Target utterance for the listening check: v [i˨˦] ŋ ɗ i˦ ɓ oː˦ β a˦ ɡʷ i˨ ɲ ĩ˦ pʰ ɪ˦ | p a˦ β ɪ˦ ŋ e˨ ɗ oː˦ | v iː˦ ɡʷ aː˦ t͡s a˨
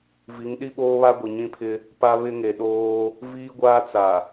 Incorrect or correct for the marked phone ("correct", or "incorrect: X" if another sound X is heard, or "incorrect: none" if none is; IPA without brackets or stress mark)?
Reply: correct